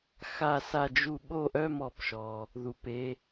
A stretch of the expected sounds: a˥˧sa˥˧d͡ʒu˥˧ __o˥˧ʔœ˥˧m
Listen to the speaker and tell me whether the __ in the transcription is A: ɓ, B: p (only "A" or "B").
A